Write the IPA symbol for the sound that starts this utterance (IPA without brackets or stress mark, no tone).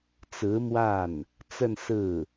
t͡s